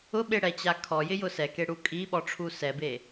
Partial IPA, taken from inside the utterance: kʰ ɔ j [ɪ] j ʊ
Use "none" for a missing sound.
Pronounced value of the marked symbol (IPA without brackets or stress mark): ɪ